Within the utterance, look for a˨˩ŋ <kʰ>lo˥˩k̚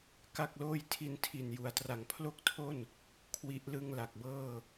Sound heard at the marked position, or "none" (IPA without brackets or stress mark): pʰ